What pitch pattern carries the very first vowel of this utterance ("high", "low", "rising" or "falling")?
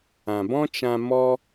low